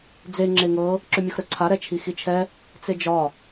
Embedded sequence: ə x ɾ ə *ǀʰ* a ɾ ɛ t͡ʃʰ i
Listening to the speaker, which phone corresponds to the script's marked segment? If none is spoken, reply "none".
ǀʰ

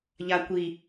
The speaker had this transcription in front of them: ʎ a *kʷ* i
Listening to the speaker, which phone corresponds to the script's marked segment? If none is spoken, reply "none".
kʷ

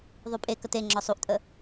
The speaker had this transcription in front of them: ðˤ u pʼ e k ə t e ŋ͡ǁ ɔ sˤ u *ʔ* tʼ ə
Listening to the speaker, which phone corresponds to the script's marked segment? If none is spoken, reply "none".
ʔ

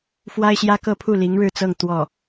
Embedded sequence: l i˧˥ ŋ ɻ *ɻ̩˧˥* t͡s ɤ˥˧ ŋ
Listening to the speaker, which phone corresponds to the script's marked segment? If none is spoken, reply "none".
ɻ̩˥˧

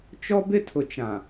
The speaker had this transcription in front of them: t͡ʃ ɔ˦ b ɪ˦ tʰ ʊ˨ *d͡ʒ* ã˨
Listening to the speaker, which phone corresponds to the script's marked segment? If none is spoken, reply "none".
t͡ʃ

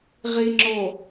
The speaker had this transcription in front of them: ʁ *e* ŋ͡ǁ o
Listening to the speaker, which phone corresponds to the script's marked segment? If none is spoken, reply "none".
i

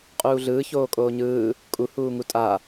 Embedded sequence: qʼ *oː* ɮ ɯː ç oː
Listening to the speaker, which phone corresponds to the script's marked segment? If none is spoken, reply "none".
uː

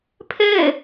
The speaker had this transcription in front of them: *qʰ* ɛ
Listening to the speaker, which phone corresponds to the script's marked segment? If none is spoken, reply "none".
pʰ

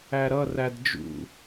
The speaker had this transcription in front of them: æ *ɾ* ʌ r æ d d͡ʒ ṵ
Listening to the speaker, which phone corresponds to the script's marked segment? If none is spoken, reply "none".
ɾ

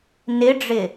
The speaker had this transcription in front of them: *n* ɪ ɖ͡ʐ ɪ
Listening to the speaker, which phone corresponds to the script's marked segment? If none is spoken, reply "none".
n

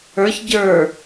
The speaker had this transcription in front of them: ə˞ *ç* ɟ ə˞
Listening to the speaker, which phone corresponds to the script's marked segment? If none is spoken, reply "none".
ç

